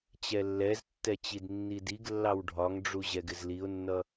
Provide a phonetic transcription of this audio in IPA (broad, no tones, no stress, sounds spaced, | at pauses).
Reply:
t͡ɕ ɛ lː ɛ z tː ɛ t͡ɕ i d nː i d i ɡ lː ɑ w ɖʱ ɒ ŋ ɖ͡ʐ u ʑ ɛ ɡ ɪ z l i ʊ̯ nː ʌ